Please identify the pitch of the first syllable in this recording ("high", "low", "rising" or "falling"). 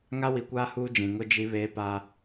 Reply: high